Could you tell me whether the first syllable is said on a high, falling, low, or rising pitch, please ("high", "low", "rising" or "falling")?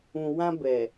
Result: low